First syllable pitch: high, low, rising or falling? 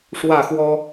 falling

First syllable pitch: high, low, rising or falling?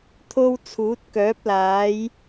high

